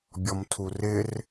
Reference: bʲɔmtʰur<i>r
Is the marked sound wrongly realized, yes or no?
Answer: yes